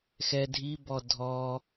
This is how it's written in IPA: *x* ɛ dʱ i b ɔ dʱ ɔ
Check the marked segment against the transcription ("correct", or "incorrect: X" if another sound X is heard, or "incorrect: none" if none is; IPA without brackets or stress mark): correct